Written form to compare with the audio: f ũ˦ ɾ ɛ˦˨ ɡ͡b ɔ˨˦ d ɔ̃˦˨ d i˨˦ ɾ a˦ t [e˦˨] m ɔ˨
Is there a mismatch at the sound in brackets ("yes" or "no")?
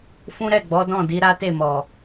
no